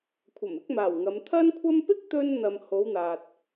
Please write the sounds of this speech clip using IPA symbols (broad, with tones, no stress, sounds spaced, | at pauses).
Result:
kʷʰ ɐ˨˩ m ɪ˥ k̚ m aː˨˩ w ŋ ɐ˨˧ m t̪ʰ ɐ˥ n kʷʰ ɐ˥ m p ɪ˥ k̚ t̪ ɵ˧ n n̪ ɐ˨ m h o˨˧ w n̪ aː˨ t̚